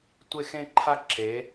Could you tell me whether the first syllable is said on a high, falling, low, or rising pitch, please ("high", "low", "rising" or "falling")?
falling